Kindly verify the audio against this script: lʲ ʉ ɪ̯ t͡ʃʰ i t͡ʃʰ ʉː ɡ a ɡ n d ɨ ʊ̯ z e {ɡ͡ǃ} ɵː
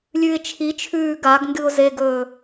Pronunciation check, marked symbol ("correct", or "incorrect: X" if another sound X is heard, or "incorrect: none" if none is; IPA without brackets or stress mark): incorrect: ɡ